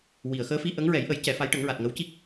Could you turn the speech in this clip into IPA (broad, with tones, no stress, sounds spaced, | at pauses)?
w i˨˩˨ ə̯ x əː˧˥ f i˧ ʔ ə˧˥ ŋ ɹ ɛ˨˩˦ j ʔ ə˨˩˦ j c ɛ˨˩˦ f a˧˥ j ʈ ə˨˩˦ ŋ ɹ a˨˩ t̚ ŋ ə˧˥ w c i˦˥ k̚